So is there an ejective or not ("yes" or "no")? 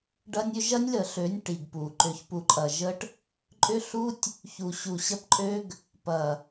yes